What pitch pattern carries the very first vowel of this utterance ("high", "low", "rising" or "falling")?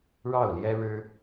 falling